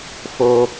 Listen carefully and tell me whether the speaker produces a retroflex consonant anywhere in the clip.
no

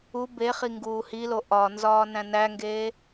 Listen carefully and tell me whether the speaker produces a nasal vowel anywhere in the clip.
yes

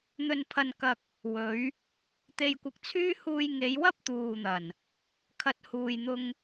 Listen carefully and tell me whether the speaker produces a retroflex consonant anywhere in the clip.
no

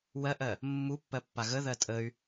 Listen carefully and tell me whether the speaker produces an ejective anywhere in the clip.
yes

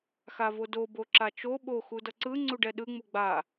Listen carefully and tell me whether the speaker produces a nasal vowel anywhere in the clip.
no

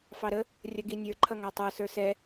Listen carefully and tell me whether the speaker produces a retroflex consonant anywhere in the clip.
no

